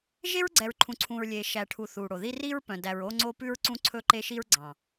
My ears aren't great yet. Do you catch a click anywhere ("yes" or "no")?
yes